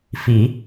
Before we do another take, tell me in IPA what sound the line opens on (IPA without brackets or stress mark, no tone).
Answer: f